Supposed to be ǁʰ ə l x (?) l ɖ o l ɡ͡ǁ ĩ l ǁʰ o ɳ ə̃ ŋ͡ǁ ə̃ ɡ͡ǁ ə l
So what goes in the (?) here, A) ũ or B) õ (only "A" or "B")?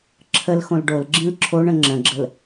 B